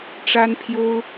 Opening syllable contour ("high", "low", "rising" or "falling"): high